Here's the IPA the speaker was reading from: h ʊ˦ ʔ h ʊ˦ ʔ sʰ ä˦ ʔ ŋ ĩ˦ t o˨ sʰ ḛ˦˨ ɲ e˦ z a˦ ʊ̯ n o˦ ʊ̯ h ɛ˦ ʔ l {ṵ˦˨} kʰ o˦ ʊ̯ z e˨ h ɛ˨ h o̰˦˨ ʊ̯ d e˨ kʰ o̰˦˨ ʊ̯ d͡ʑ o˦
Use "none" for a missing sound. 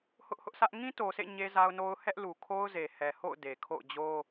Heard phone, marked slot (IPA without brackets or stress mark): u˨